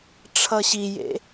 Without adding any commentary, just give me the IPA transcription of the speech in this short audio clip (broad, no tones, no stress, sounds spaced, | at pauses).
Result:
ʈ͡ʂʰ ʌ ɕ i j ḛ